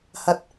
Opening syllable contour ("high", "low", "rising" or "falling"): low